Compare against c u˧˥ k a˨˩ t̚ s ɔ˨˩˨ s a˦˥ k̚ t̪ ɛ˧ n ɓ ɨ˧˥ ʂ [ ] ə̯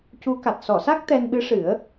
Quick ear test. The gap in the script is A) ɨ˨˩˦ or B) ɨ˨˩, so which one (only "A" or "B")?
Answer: A